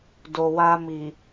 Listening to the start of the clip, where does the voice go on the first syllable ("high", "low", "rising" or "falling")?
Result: low